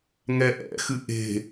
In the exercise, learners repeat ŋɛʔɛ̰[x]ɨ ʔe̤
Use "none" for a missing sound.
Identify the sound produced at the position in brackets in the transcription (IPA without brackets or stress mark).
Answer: x